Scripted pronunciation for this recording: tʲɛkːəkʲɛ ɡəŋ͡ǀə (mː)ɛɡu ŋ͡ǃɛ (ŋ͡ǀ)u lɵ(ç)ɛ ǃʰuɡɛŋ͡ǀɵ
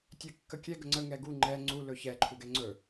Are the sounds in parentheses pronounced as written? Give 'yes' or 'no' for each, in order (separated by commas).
no, yes, yes